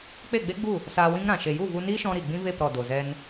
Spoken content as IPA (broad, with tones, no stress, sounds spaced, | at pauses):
k͡p e˦˨ ɡ͡b e˦ ɡ͡b u˦˨ | s aː˧ w ĩ˦ ŋ ɾ ã˨ ʃ e˨ j u˦˨ v u˧ n iː˦ ʃ ɔ̃˧ ɾ i˨ ɡ͡b ĩ˦ v e˦˨ p ɾ ɔ˨ d o˨ z ɛ˧ n